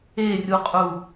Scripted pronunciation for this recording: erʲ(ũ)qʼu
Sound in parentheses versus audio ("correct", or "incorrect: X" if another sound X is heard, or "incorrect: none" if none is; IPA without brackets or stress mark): incorrect: u